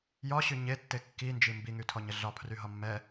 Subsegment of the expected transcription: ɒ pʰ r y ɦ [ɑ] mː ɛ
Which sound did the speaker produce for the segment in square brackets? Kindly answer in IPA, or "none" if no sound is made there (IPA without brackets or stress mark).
ɒ